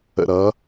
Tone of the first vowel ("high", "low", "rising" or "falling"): low